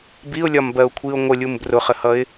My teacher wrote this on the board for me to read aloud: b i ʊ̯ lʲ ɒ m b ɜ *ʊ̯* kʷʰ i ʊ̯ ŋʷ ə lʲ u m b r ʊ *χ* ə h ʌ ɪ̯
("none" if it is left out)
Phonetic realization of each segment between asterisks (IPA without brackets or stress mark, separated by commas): ʊ̯, χ